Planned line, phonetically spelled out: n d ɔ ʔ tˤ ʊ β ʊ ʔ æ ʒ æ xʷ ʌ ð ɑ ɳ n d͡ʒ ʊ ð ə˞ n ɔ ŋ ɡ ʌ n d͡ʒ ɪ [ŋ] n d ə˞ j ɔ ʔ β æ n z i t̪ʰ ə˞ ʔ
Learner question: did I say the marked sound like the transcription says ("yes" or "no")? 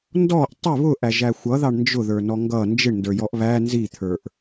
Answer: no